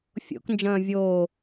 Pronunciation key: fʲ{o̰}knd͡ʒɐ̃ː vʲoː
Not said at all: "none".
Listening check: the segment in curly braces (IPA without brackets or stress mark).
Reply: o̰